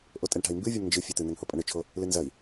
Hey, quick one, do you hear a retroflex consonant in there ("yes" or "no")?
yes